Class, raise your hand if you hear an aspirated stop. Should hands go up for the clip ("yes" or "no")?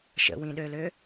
no